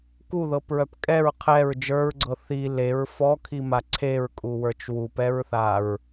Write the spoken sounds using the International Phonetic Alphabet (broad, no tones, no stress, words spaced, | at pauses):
kuðɤpɹœp kʼɛɹ qʰɛɹ d͡ʒə˞ɹɡ͡ǀɤ θi leɹ fɔkʰima ǀʰeɹkʼuwə˞t͡ʃ wupɛɹθaɹ